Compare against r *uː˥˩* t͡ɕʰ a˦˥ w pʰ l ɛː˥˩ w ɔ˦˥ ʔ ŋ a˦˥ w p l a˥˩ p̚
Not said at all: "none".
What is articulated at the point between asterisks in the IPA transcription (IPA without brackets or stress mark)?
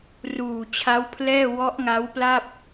uː˨˩